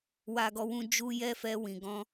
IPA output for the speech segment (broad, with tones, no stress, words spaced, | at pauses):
wa˦ɡɔ˦wũ˦ d͡ʒu˦jɛ˦fɛ˧ wĩ˨ɡɔ̃˧